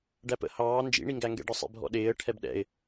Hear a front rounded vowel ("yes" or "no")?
no